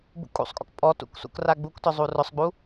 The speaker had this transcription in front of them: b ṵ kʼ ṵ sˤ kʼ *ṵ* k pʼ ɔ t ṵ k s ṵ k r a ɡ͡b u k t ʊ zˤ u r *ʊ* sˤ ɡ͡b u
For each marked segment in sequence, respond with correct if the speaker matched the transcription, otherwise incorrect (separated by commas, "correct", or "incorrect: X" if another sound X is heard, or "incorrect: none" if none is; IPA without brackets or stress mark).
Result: incorrect: o̰, correct